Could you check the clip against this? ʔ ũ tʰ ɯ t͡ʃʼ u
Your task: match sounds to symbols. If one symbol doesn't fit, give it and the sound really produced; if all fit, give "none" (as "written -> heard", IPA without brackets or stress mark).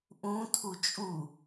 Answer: ɯ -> u